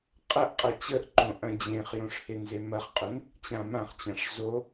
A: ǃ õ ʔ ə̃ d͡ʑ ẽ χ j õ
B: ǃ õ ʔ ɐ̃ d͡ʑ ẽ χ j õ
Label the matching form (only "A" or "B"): B